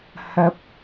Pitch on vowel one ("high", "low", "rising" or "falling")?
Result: rising